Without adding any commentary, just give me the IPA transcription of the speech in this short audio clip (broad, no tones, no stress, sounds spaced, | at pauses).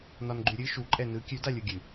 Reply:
n ɒ n ɡ͡ǃ ʉ ɾʲ ɨ ʃ u ǃʼ ɛ n ɯ kʲ ʉ d a lʲ ɯ ɡʲ ɨ